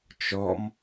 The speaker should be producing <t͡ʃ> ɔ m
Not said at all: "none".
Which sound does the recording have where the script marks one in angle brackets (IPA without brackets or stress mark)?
t͡ʃ